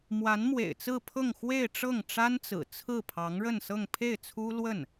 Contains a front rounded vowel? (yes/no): no